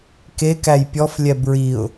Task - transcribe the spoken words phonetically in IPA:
k e k æ j pʲ ɔ f lʲ ɛ b ɹ i ʊ̯

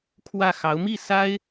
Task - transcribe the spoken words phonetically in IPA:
kʰ w ä˥˩ x ɑ˧˥ ʊ̯ m i˥˩ s a˥ ɪ̯

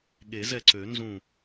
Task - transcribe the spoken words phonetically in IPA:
ɠ e˨˩˦ z ɛ˧˩ ǀ ø˨˩˦ n z ũ˧˩

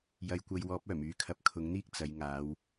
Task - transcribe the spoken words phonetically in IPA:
j ɐ˨ j kʷ ɐ˧ j w ɔː˨˥ p̚ œː˨˩ m yː˨˧ kʰ ɐ˨˥ p̚ kʰ ʊ˨˥ ŋ n̪ iː˥ k̚ t͡s ɐ˨˧ j ŋ aː˨˧ w

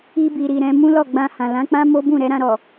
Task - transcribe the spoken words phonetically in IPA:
i˧ b i˨ ɾ i˨ ɾ ɛ̃˨˦ m ũ˦ l ɔ˦˨ ɡ͡b ã˧ h ã˨ l ã˨˦ k͡p ã˦ m o˦ b ũ˦˨ ɾ ɛ˧ ɾ ã˧ ɾ ɔ˨

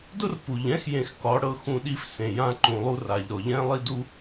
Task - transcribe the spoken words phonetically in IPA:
d ʊ˦ r p u˨ ʎ ɛ̃˦ x j ẽ˧ x k ɒ˨˦ ɽ ɤ˧ x ũ˧ ɗ i˧ f s ẽ˨ j ã˧ ǃ ũ˨ lˠ u˧ r a˨ ʎ ɾ ɔ˨ ʎ ɛ̃˦ lˠ i˧ d u˧

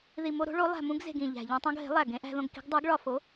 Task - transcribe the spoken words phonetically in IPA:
ð i˨˩ m o˧ ɾ o̤˩˥ ɭ o˩˥ lˠ æ̤˨˩ m ũ˧ ɡ z e̤˨˩ ɡ ĩ˨˩ ʎ æ̤˨˩ ʎ ẽ˧ tˤ õ˧ ɡ ɦ e̤˩˥ lˠ æ˨˩ ɡ ẽ˩˥ ʔ æ̤˧ ð õ˧ ɡ k i̤˩˥ ɡ dˤ o˩˥ ɡ ɭ ɒ˨˩ f o˩˥

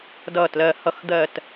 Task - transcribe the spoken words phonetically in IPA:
d ʌː˨˩ t l ɜ˨˩ h ʌ˨˩ x d̪ ɜ˨˩ t

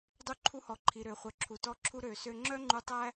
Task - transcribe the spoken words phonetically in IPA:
dˤ u˧ ǃʰ u˧ h ɔ˩ ǃʰ i˩ ɾ ø˩ χʷ œ˩ ǁʰ u˩ t ɔ˧ ǁʰ u˧ ɾ ø˩ s ø˧ ŋ͡ǁ œ˥ ŋ͡ǃ u˧ tˤ æ˥

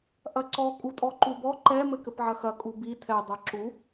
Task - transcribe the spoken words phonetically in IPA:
ʔ ɐ ǀ ɔ kʼ u tʼ ɔ ǃ u b ɔ ǃ ɛ m ɘ k ɘ p ʕ ɐ x ɐ kʼ u b i tʰ ɛ dˤ ɛ ǁ u

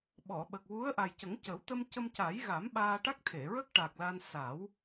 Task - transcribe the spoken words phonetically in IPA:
ɓ ɔ˨˩˨ ɓ ə˨˩ k̚ w u˧˥ ə̯ ʔ a˨˩ j c ə˨˩˦ ŋ c ə˨˩˦ w t̪ ə˧ m c ə˧ m c a˨˩˦ j ɣ a˨˩˦ m ɓ aː˧ ʈ a˦˥ k̚ t̪ʰ e˨˩˨ ɹ ə˦˥ k̚ ʈ a˨˩ k̚ l a˧ n s a˨˩˦ w

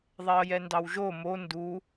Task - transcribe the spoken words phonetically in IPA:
ðˤ ɛ ə̯ j ɛ n d ɑ w ʒ o m o n d u

